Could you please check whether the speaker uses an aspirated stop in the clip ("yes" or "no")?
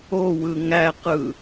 no